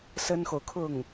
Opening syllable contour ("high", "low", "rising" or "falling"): high